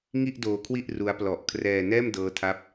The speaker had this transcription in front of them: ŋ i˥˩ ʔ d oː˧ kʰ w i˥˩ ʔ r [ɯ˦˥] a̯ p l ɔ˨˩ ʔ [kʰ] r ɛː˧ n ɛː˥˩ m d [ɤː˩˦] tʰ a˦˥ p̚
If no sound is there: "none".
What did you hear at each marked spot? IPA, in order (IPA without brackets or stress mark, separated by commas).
u˦˥, kʰ, ɤː˦˥